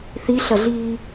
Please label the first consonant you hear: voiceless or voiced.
voiceless